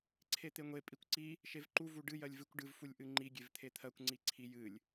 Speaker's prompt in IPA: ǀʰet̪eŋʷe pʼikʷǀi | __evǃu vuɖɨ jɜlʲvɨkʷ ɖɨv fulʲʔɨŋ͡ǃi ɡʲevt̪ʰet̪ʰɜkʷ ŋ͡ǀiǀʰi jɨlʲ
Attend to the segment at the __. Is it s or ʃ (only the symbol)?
ʃ